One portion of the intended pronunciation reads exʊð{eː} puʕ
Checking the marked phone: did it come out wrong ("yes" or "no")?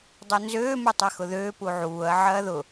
yes